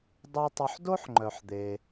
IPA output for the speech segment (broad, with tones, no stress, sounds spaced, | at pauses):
dˤ ɑ˥ tˤ ɵ˦ ħ d o˥ ħ ŋ͡ǃ œ˨ ħ d̪ e˨